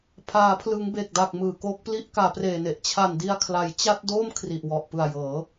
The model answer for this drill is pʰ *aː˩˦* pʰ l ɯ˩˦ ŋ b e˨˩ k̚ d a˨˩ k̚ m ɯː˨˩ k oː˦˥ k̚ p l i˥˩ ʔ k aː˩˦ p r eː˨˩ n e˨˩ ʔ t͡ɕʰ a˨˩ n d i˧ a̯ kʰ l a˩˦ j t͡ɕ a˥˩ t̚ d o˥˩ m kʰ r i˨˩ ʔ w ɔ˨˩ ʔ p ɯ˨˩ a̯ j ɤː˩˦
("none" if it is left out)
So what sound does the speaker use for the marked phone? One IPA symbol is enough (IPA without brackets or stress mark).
aː˩˦